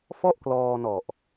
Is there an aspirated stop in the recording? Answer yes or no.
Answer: no